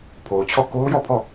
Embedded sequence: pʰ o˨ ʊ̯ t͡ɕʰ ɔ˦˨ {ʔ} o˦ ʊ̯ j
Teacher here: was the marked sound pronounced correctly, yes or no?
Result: no